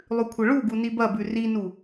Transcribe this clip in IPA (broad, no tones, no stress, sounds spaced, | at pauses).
lˠ ʉ kʷʰ ɐ ɭ u ɡ u n i b ɐ b ʉ r i n u